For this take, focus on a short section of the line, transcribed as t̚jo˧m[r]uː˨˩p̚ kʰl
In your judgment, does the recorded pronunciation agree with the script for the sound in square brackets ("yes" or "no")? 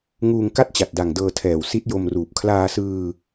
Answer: yes